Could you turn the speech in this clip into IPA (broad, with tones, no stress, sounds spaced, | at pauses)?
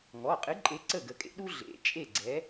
ŋ ɔ˩˧˩ qʼ ɨ˨˥ ǃʼ e˨˥ ǀ ə˥˩ ɡ ə˨˥ kʼ ḛ˥ ɗ u˥ ɮ ḛ˨˥ t͡ʃʼ e˥˩ ɡ͡ǀ ɛ˨˥